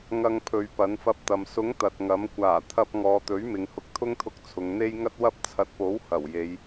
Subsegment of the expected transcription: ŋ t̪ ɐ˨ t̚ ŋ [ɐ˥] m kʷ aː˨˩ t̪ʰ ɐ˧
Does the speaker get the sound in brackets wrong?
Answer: yes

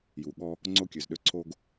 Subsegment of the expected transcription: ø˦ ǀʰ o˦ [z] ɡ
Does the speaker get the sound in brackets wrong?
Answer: yes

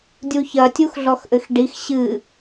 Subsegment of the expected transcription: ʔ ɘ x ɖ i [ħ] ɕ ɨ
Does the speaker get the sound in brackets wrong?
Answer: yes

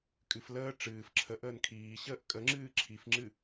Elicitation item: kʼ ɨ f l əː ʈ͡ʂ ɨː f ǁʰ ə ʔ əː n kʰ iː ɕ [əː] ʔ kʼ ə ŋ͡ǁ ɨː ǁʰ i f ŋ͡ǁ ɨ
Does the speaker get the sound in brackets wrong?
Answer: no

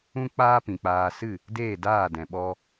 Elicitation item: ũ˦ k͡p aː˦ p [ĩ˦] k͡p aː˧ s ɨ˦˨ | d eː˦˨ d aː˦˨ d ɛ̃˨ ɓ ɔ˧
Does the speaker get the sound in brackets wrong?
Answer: yes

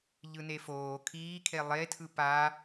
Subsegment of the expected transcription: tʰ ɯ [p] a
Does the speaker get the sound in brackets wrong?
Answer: no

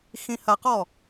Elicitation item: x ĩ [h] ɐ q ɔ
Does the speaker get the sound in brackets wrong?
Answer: no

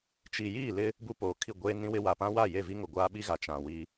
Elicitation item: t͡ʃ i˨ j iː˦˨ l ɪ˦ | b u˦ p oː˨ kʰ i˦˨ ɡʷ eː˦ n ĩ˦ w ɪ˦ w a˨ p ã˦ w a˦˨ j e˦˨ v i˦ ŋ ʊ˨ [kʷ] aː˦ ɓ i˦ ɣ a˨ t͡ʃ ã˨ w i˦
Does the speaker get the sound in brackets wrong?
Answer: yes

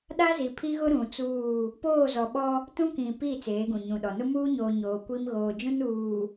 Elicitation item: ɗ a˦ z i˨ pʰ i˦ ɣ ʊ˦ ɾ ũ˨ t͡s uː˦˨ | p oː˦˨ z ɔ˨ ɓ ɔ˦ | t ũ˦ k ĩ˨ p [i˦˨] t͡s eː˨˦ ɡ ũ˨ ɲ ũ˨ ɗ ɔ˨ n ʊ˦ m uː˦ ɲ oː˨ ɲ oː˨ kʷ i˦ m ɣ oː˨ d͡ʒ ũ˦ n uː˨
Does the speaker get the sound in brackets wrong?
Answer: no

